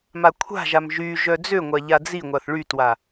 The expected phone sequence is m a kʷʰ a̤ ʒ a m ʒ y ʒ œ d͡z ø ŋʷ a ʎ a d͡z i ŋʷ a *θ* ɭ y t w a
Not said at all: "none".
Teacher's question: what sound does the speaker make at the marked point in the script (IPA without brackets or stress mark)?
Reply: θ